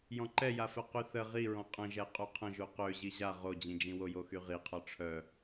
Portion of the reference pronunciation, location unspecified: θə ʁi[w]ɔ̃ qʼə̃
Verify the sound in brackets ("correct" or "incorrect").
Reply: incorrect